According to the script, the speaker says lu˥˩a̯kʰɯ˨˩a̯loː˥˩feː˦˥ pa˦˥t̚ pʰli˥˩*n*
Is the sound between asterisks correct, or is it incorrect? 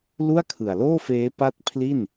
correct